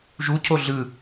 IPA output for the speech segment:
ʒu cʰoɮɯ

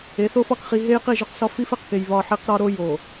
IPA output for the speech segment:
e˨˦θo˦f ɒ˦kχi˦ ɦe˦jqi˦˨ʒo˦qsɒ˦ fi˦fe˨qke˨j βɒ˦˨ ħi˦qɾɒ˦ ɾo˦jo˨

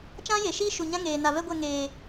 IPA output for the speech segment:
t͡ʃã˦je˨ʃiː˦ ʃu˨ɲã˦ ŋeː˨ na˨vɛ˦ɡʷɛ˦˨ ŋeː˨

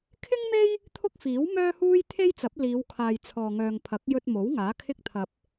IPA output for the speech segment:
kʰɪ˥ŋme˥j | t̪ʰʊ˥k̚ fiː˨˥w mœː˥huː˥j t̪ʰe˥jt͡sɐ˨˥p̚ liː˨˧wkʰaː˨j t͡sʰɔː˨ŋœː˨ŋpʰɐ˨˥k̚ jɵ˧t̚mo˨˥w ŋaː˨˥kʰɪ˥k̚t̪ʰɐ˧p̚

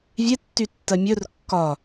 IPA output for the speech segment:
vʲetːytːɜ mʲɵr kːɒ

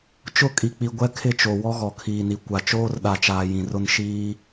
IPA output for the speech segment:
t͡ʃʊ˦˨kʼi˨k͡pi˨ ɡʷɛ˦kʰɪ˦˨t͡ʃo˨ wɔ˦ɣɔ˨kʰiː˨ni˨ kʷa˨t͡ʃoː˦rɗa˨t͡ʃaː˨ jĩ˨rʊ˦n ʃiː˦

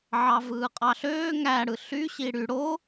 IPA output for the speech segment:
ʕɑvɯːqʼɑɬøː ŋæɽɯ ɬy ɕiɽy ɽo

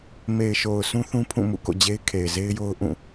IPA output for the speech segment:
me˨ɪ̯ʃo˨ʊ̯ sũ˦θũ˦ pʰũ˦˨mṵ˦˨ko̰˦˨ d͡ʑe˦ɪ̯kʰe˨ɪ̯ze˦ɪ̯jo˦ʊ̯ ʔũ˦˨

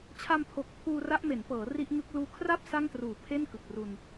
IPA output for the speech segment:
t͡ɕʰa˧mpʰo˨˩k̚ pʰuː˧ra˦˥ʔme˩˦npɤː˩˦ ri˦˥ʔŋɯ˦˥k̚ luː˧kʰra˥˩p̚ sa˥˩ŋtruː˨˩ pʰe˥˩nkɯ˨˩k̚ru˧n

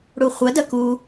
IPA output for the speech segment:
ɽuχʷɐ dɐku

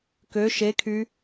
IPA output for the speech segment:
kø ʃekʰy

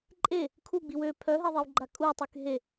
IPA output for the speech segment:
ǃʼe | kʰuɡ͡biw ø pʰœɦeðˤiwɡ͡ǃa kʼutˤyk ɦe

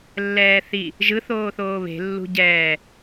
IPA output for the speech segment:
lːɛːθi | ʒɯ θoːθoːβe̤ lːṳɟɛː

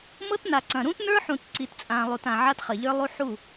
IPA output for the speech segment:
mɤ˦tna˨ ǀɐ̃˨ ɾũ˦tnə˞˦ħũ˨t ǀi˨tt͡sʼã˨ lˠu˨tã˨ ʕa˦tχɐ˨ʎə˞˦ lˠu˦ ħu˦˨

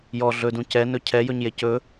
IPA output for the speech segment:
jɔ ɮɵdũ cɛnɵ cʰɛjɵɲje cɵ

